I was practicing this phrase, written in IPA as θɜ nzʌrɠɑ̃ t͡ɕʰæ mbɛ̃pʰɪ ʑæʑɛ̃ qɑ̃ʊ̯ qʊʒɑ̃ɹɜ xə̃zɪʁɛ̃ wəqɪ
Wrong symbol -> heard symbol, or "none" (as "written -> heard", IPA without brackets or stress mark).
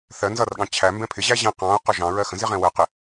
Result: none